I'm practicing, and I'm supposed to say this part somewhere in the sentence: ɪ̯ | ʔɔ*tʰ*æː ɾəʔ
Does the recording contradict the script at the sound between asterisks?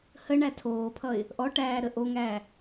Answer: yes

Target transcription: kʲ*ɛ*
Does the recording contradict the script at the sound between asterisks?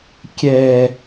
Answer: no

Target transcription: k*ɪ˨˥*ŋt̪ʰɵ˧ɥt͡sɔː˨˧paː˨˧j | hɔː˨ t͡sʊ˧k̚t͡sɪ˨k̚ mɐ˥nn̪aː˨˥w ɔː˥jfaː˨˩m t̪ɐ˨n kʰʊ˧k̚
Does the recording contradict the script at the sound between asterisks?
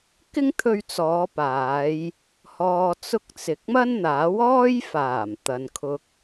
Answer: yes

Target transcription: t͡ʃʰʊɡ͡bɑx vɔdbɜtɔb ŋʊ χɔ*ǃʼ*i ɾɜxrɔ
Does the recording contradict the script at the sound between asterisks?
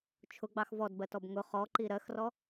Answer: yes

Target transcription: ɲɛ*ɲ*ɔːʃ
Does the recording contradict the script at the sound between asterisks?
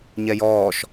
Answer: yes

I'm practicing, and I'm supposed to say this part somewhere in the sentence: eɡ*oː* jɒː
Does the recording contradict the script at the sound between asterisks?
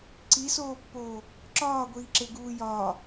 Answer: yes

